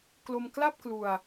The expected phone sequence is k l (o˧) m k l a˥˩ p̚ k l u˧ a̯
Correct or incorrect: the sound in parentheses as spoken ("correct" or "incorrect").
correct